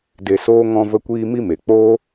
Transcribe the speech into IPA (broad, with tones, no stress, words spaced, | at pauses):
de˧soː˦ ŋɔ̃˧və˧kʷiː˧ mi˦me˨ k͡poː˦